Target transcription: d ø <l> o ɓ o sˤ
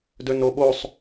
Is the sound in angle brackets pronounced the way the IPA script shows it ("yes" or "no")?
no